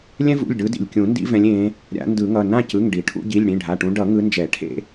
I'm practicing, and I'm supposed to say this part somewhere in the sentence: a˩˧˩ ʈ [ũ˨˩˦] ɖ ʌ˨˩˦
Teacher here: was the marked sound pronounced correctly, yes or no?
no